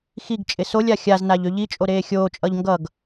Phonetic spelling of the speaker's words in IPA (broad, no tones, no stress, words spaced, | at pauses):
xiɡt͡ʃʼɪ solʲa xʲaznaʎ øʎit͡ʃʼo ɾeːxʲoːt͡ʃʼʌʎ ŋɡʌɡ